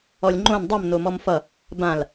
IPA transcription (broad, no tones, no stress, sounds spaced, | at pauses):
ɔ lʲ ŋ͡ǃ õ n dˤ ʌ m n o m ɔ m f ʌ | b ã l